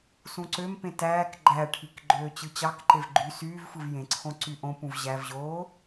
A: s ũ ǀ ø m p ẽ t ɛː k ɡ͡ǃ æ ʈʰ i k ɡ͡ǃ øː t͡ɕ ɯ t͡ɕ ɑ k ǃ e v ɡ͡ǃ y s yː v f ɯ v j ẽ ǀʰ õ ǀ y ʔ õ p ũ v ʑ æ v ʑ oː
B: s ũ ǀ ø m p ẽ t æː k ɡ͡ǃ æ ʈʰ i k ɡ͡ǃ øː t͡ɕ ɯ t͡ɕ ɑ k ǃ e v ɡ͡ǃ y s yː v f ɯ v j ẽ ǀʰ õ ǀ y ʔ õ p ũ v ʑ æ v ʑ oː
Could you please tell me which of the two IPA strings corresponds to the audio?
B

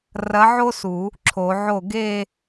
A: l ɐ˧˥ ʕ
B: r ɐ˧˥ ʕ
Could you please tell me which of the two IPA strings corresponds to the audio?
B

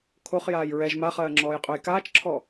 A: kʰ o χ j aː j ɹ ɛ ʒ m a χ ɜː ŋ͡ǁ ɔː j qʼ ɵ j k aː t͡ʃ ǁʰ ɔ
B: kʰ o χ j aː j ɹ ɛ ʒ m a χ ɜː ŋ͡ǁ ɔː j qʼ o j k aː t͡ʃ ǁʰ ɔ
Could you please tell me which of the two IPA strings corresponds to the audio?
A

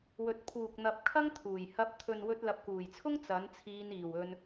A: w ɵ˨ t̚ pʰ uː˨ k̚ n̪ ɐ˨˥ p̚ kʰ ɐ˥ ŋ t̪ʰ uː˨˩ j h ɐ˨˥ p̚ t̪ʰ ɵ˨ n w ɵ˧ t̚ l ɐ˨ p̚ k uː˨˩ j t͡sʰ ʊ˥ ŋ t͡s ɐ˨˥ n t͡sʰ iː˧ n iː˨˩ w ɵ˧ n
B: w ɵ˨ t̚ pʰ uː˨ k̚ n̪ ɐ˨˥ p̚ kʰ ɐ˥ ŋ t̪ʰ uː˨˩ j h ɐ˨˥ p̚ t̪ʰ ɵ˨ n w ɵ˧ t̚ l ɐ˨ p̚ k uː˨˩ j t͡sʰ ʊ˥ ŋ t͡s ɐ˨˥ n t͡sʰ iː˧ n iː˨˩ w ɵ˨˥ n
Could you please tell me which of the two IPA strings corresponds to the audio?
A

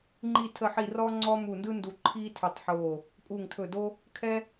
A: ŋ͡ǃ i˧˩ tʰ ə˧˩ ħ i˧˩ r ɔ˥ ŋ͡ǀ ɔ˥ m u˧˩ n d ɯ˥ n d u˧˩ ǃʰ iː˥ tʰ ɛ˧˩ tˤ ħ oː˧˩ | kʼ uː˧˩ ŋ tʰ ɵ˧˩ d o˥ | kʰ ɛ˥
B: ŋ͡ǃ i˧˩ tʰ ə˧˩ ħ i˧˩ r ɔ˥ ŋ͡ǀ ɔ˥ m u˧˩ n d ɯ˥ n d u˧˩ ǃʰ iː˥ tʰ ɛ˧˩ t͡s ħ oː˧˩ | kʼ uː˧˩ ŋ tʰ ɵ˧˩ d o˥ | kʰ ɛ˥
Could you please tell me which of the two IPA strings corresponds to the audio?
A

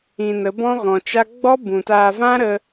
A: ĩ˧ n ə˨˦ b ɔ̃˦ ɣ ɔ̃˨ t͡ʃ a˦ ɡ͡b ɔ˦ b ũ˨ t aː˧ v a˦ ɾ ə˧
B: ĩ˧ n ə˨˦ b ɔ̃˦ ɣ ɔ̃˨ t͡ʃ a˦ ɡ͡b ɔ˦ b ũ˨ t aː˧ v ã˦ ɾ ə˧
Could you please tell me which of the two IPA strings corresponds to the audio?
B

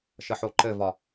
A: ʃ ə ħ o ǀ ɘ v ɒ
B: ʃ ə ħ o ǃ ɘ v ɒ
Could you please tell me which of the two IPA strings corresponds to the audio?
B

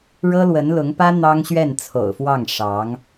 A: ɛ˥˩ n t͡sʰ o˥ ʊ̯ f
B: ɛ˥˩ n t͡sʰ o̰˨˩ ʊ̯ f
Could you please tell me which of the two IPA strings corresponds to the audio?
B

